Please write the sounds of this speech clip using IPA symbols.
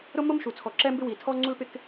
ɾʊ˥mʊ˥mʃu˩ t͡sʰɔ˩ǁɛ˥mbɪ˥ wi˩tʰɔ˥ ŋ͡ǀu˥lpɪ˥k

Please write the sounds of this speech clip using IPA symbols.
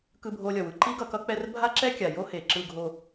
kɯ˧bʱo˧lʲʌ˨wɯ˦ ǃi˦ɡʌ˧kʌ˦ k͡pɛ˦r bʱa˦ǁɛ˦kʲa˨ jo˦he˨ǁɯ˧ ɡʱo˧

